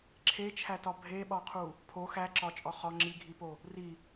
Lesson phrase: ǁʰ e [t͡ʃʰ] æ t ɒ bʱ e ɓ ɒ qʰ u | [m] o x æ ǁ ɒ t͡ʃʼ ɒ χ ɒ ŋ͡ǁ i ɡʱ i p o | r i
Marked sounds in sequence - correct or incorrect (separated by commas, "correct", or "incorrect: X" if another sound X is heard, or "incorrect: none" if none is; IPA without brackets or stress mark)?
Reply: correct, incorrect: pʰ